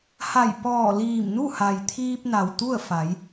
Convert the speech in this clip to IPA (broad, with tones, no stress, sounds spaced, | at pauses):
h a˧˩ j p ɔː˧˩ l iː˧˩ m n u˥˨ h a˩ j t̪ʰ iː˧ p̚ n a˩ w t̪ u˥˨ ə̯ f a˩˧ j